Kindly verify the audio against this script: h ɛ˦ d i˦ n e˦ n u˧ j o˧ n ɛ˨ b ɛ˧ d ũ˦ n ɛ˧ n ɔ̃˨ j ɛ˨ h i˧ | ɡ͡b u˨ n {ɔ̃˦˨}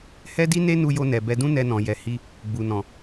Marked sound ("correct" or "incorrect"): incorrect